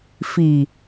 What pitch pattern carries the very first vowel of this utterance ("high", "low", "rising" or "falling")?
low